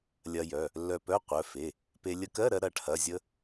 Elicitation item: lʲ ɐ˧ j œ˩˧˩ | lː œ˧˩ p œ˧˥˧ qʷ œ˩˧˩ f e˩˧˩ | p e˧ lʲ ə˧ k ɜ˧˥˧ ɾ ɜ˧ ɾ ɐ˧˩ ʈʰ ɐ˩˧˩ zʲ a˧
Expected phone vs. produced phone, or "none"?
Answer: a˧ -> ə˧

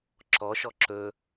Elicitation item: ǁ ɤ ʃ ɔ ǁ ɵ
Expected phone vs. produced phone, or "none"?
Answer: ɤ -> ɔ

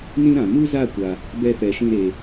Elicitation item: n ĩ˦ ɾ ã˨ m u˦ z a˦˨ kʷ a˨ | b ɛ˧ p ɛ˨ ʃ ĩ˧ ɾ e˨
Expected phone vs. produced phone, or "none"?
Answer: none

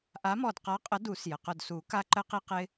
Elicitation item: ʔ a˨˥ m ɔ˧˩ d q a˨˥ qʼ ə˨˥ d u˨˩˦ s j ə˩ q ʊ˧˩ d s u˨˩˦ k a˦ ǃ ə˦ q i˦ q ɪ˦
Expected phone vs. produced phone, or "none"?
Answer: none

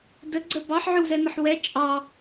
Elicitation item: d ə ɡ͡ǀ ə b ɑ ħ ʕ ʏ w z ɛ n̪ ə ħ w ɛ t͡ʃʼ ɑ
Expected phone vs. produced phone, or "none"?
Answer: none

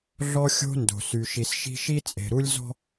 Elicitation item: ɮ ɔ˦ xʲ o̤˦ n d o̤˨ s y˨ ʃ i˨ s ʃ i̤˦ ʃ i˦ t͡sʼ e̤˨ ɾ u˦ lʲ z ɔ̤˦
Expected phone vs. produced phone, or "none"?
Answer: none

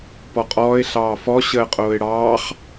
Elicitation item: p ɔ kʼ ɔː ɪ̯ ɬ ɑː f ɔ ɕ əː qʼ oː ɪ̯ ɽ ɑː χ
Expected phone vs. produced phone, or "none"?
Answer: kʼ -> qʼ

